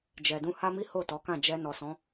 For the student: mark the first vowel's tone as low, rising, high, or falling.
low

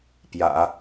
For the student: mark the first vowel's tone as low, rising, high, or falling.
low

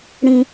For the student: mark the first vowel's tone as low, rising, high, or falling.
high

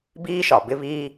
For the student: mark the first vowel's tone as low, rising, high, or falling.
high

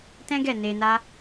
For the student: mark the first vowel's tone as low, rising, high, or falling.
high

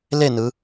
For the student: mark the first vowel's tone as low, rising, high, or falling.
falling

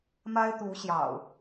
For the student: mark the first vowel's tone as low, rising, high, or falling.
high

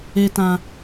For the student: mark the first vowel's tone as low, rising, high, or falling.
high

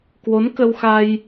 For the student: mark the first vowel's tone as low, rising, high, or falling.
rising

